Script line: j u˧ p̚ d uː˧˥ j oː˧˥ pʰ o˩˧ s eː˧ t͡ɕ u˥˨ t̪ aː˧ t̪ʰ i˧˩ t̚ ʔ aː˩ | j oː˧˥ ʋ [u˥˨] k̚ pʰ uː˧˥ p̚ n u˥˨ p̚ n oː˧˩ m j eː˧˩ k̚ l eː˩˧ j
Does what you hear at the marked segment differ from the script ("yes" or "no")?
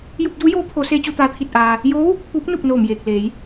no